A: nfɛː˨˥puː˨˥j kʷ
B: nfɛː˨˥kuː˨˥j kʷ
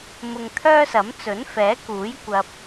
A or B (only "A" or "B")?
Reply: B